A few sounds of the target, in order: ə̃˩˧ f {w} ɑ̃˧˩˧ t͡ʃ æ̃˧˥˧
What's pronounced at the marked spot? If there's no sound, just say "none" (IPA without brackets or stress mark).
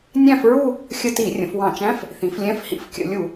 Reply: w